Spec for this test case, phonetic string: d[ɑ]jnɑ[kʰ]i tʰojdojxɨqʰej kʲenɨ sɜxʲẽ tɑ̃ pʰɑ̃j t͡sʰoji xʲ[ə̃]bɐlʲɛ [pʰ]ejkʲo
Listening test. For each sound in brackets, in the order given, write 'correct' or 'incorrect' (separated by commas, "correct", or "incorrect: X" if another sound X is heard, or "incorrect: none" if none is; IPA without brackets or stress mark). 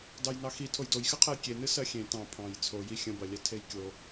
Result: correct, incorrect: x, correct, incorrect: tʰ